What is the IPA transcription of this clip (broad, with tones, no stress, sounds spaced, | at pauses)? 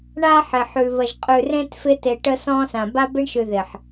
ɳ a˦ ħ ɪ˨ ħ ʉ˨ β ə˨ ʒ qʼ ʉ˨ r ẽ˦ t f ɪ˦ t e˨ ʈ ə˦ s ɔ̃˦ s ã˨ b a˦ b ɪ˦ ɳ ʃ ʉ˨ ð ɪ˨ ħ